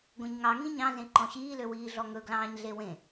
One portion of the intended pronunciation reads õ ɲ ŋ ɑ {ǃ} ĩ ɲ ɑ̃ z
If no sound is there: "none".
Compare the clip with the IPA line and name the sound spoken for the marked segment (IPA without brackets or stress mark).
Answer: ŋ